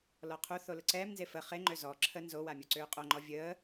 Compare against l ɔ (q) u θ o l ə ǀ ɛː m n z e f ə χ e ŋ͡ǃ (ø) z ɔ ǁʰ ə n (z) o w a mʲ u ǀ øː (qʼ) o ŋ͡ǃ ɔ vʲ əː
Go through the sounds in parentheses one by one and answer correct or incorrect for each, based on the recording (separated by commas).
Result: incorrect, correct, correct, correct